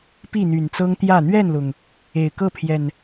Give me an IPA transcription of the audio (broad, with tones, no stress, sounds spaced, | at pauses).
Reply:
p i˥˨ n̪ y˨˩ n t͡s ɤ˦ ŋ t̪ j ä˥˨ n̪ ɥ ɛ˥˨ n l ʊ˩ ŋ | e˨˩ ɪ̯ k ɤ˥˨ pʰ j ɛ˨˩ n